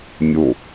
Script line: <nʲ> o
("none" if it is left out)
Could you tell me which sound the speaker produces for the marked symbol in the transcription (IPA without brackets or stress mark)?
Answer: nʲ